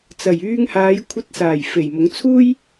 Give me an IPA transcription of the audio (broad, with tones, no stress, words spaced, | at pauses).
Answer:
t͡sɐ˨˩jyː˧ŋhaː˨˧j kʷʰɐ˧t̚saː˨˩j fe˨˩jmʊ˨˧ŋ t͡sʰuː˥j